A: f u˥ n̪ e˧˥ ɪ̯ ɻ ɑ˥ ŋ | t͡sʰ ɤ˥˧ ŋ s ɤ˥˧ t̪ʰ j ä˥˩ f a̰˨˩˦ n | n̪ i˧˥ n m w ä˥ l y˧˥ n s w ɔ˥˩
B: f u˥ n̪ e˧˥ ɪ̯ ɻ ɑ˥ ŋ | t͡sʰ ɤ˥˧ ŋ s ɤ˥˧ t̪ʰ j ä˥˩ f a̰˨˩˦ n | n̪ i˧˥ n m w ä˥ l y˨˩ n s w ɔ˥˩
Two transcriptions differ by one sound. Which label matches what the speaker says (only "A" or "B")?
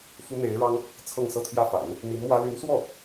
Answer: A